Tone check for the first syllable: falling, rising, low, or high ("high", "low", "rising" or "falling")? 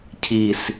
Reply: low